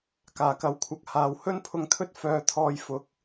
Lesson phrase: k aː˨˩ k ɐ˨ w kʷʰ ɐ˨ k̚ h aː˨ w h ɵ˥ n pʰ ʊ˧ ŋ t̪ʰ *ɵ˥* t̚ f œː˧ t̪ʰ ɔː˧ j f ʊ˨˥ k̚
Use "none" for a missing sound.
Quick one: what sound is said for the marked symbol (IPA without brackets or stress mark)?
ɵ˥